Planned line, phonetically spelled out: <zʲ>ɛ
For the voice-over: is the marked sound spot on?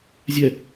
yes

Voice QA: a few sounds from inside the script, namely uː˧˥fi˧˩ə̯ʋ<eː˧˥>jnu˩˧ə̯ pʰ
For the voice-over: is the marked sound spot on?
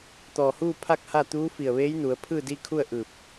yes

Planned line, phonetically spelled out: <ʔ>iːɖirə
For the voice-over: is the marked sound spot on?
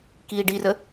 no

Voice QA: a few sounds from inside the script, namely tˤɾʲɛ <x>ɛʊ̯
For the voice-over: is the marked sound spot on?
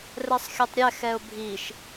yes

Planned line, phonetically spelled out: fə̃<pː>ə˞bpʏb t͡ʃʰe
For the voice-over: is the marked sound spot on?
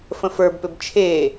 no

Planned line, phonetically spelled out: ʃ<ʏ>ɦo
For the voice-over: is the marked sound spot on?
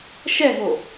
no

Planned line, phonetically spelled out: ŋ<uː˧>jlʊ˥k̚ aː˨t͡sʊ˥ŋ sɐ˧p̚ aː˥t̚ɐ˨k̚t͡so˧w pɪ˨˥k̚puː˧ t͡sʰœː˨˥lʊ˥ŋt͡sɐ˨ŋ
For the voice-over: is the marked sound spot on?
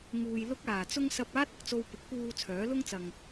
yes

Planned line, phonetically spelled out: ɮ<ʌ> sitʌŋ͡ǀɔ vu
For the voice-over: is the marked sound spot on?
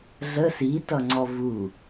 no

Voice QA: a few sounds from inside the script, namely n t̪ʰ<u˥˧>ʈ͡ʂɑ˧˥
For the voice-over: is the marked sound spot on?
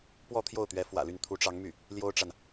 no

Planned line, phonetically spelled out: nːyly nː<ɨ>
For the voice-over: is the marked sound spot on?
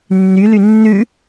no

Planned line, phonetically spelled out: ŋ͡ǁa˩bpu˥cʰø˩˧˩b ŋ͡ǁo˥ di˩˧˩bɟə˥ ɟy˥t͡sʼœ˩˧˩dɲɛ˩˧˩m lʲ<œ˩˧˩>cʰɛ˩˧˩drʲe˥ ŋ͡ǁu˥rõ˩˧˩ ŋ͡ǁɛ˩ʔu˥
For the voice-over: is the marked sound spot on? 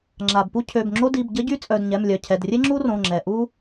yes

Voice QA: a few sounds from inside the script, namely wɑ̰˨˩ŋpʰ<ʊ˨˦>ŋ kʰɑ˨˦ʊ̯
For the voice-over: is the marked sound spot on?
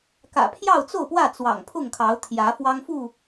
no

